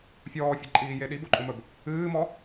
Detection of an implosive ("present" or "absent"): present